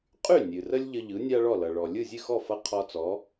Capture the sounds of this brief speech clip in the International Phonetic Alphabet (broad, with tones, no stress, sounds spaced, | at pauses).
qʼ y˥˩ nʲ ɨ˩ r ə˥ lʲ ʎ ə˧ ʎ ɯ˩˥ nʲ a˥ ɭ ɔ˥˩ l ʌ˩ ɭ ɔ˩ lʲ ɯ˥˩ zʲ ɨ˥˩ x ɔ˥˩ f ʌ˧ qʰ ɔ˧ t͡s ɔ˩˥